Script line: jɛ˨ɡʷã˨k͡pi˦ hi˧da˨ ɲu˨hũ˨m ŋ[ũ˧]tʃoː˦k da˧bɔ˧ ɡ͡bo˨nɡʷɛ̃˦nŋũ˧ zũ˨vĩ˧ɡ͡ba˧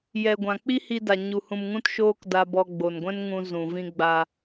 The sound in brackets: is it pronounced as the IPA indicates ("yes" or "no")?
no